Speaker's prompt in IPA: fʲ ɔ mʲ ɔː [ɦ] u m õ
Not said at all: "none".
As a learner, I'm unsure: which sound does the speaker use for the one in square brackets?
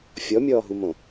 ɦ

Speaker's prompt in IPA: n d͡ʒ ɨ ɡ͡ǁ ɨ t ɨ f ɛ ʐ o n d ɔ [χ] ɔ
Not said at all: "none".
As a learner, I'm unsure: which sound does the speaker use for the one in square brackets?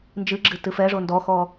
x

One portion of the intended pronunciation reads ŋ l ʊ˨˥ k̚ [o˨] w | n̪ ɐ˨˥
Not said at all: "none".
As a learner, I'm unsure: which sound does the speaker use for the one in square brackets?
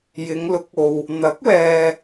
o˨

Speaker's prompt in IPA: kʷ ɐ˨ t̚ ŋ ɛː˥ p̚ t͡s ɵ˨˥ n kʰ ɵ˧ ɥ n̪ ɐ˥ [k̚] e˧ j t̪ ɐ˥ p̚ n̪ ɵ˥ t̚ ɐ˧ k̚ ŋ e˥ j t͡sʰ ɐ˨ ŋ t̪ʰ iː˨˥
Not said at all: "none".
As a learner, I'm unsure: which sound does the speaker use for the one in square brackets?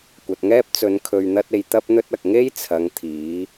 t̚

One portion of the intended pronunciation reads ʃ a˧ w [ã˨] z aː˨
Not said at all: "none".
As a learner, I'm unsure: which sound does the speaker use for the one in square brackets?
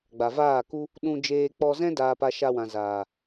ã˨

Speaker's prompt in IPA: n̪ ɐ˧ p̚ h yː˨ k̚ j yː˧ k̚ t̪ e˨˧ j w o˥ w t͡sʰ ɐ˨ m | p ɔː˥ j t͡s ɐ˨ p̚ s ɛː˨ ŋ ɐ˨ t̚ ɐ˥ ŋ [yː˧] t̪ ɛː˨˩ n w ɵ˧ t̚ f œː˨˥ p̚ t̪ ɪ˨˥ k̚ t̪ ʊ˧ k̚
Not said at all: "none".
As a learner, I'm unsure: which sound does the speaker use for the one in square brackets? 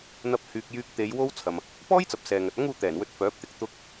uː˧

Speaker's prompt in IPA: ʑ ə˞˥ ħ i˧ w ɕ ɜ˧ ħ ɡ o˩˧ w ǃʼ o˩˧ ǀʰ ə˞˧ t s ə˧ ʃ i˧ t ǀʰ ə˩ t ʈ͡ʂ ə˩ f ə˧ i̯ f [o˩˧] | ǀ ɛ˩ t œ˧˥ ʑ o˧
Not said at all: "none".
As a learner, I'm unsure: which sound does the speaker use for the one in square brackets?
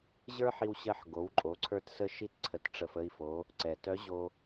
o˩˧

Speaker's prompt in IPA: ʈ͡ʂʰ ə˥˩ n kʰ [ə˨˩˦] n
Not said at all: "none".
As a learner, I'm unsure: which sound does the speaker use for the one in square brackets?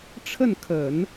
ə˨˩˦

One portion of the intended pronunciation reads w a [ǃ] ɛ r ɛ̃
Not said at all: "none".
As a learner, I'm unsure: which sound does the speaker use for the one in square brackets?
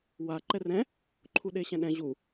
ǃ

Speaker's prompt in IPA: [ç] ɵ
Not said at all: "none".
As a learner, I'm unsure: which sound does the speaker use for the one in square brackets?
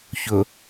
ç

